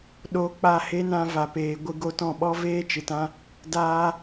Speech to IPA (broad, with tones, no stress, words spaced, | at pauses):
ɗo˧ k͡pa˦˨he˦nã˧ va˨peː˨ ɡʷɨ˧ɡo˧tɔ̃˦˨ ɓɔ˦veː˦t͡ʃɨ˨tã˦ | daː˧